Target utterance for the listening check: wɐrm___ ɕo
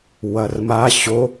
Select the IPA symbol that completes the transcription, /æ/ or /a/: a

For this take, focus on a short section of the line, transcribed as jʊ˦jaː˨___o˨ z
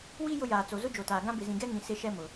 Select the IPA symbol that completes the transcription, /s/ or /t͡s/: t͡s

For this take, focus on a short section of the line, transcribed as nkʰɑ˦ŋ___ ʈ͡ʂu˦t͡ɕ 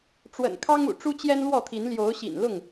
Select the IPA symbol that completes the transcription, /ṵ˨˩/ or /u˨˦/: ṵ˨˩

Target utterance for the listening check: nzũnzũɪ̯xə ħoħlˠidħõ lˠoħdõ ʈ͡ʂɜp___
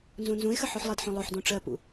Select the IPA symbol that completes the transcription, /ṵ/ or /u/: ṵ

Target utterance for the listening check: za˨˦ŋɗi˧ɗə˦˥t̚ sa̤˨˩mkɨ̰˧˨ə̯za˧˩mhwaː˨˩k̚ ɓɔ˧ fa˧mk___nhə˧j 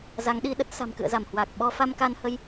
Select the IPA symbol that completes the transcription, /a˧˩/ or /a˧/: a˧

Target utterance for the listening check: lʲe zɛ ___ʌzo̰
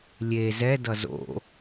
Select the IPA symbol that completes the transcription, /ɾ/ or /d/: d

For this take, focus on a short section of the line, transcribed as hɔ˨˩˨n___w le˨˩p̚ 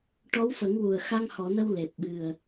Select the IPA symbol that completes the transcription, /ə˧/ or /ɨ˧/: ə˧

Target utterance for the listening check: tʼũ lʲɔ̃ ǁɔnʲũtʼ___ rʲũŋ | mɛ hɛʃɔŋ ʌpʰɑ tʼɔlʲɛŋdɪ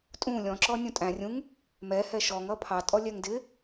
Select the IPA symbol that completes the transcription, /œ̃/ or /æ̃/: æ̃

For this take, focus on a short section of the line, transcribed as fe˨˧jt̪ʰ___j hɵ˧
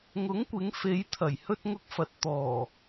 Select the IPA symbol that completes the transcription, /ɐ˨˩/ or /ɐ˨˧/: ɐ˨˩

